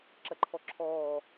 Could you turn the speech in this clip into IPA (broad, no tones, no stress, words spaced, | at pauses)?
ǁɐǃʰɔǁʰɔː